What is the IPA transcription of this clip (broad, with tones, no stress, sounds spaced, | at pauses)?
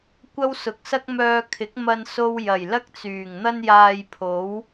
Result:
kʷ ɐ˥ w s ʊ˨˥ k̚ s ɐ˥ k̚ m œː˧ kʰ ɪ˨˥ k̚ m ɐ˧ n s o˧ w j ɐ˨˩ j l ɐ˥ k̚ t͡s yː˨˩ ŋ n̪ ɐ˧ n j aː˨ j pʰ o˨˥ w